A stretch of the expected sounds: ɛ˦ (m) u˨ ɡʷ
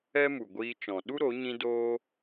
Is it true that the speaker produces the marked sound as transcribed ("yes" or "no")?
yes